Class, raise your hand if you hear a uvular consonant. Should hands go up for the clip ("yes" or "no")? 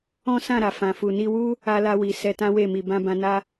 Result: no